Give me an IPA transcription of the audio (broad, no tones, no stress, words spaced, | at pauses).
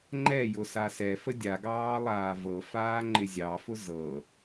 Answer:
ŋ͡ǃɛjʊ sasɛfə dʲaɡɑː lˠaːvɤfaː ŋ͡ǃɪzʲɑfʊ zɤ